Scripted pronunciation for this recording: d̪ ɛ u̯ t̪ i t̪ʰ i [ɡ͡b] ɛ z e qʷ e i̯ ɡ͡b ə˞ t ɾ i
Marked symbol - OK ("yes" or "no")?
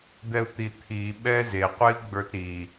no